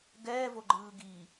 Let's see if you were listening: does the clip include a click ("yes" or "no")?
yes